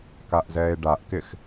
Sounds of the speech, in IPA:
kaʔzɛːe̯ɖaʔkɪx

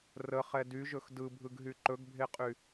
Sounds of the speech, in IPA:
rəχɛ dyʒɵx dɯbʱɯɡɦy ǃɵɡbʱeqʼy

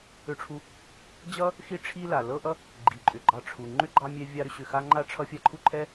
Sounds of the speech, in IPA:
ʏ˨ʈ͡ʂʰu˨ | d͡ʑʌ˥ | xi˦ʈ͡ʂʰi˦ la˩ lɤ˦ʔʌ˦ | ɡ͡ǃi˩ǃʼʏ˩ɡ͡ǃɑ˨ ʈ͡ʂʰu˩ ŋ͡ǃʏ˥ɡ͡ǃɑ˦mʲɛ˦ vʲɑ˦ɾʏ˦ ɕʏ˨xa˦ ŋ͡ǃa˦ʈ͡ʂʰʌ˦ fʲa˦ǃʰu˥ǃʰɛ˥

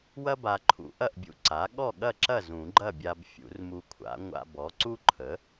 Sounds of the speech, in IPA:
wɐ˥ba˧ǃʰṵ˨˩˦ ʔɐ˥˩ʔbʲṵ˧ ǀa˩˥ ɠɔ˥˩ɠɐ˥˩ǁɐ˥˩ zũ˨˩˦ɡ͡ǃɐ˥˩bʲa˧b fʲṵ˨˩˦rmu˧kʷʰa̰˩˥ ŋʷa̰˧bɔ˩˥ ǀu˥ǃʰə˩˥

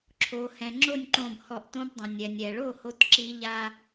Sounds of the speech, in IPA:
ǁʰo˩hɛ̃˩ŋ͡ǁo˥˨nʲǃõ˧˩b hɔ˧˩ʔtõ˦˥bdˤõ˩ nʲɛ˩nʲɛ˩ɭo˥˨ho˧t ǁi˦˥ ʎa˧

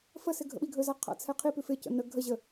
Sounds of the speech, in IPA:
fəsɪ ɡʱə̰ɓiɡʱɵza qʰa̰t͡sʰɛqʰipʉf ɪcə̰ nə ɡʱəʑə

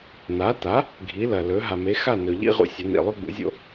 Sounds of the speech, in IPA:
na˩˥ta˩˥ | ɡʱi˩˥lɐ˩lɵ˩˥ ɦa˩me˩˥xa˥˩nɵ˩ ʎḭ˥ʁṵ˧ sʲɐ˩˥nḭ˩lˠʉ˥ ɡ͡bṵ˩˥zʲo̰˧

